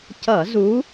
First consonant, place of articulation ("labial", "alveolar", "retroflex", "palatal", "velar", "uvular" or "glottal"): palatal